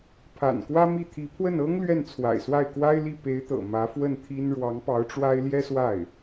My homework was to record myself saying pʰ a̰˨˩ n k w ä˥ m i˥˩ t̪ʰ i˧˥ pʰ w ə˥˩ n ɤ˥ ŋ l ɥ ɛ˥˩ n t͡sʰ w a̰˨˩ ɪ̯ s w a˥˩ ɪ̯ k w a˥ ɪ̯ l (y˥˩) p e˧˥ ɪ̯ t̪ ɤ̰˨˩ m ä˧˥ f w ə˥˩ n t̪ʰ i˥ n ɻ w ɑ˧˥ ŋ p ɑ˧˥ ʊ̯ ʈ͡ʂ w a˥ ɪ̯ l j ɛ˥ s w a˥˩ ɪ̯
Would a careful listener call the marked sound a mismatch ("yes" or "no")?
yes